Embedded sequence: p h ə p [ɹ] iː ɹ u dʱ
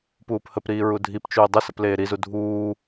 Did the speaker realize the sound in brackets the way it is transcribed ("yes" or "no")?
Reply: no